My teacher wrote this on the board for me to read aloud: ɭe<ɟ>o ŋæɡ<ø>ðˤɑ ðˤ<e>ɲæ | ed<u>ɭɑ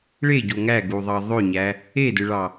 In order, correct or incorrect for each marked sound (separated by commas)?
correct, incorrect, incorrect, incorrect